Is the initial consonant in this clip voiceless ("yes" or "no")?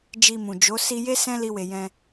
no